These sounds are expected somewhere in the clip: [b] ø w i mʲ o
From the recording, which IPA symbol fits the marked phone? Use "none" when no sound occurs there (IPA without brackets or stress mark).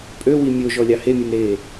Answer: pʼ